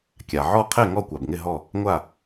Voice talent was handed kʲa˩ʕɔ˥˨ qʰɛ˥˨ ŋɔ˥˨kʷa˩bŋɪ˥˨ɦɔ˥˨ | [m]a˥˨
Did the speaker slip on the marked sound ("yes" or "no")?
yes